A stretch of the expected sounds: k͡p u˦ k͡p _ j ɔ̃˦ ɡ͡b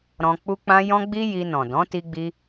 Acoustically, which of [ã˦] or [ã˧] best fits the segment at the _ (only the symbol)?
ã˧